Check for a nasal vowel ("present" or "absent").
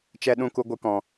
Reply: present